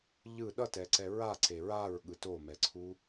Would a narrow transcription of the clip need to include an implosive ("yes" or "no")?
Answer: yes